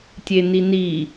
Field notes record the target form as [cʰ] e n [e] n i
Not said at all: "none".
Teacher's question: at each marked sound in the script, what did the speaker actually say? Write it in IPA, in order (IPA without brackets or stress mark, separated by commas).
tʲ, i